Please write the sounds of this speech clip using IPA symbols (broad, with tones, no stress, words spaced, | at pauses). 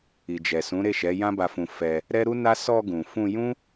i˨d͡ʒɛ˨sũ˨˦ ɾe˦˨ʃɛ˨˦ jã˦ba˧fũ˧ fɛ˧ | ɾɛ˦ɾu˦na˦ sɔ˧ɡũ˨fũ˧jũ˦